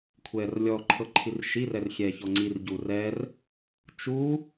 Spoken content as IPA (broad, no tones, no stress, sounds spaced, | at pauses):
kʷʰ ɛː r lʲ ɔ ǃʰ ɤ ǃʰ i r ʃ i r ɛ r xʲ ɛː ç ɔ ŋ͡ǀ i r ɟ u r ɛ r | t͡ʃ u